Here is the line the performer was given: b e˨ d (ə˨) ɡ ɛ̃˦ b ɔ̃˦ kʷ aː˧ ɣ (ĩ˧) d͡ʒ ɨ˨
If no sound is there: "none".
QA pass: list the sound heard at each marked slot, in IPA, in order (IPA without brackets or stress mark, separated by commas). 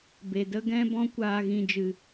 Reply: ə˦, ĩ˧